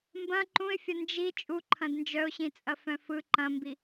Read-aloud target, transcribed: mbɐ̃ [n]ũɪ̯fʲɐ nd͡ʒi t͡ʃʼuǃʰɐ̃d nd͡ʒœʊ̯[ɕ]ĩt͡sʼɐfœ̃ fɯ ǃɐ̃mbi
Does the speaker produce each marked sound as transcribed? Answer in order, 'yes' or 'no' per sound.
no, yes

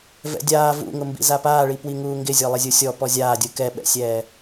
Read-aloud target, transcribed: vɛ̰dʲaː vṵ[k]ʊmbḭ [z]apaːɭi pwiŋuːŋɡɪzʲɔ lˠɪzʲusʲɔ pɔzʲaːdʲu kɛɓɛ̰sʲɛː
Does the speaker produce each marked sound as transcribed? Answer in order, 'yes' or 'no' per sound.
no, yes

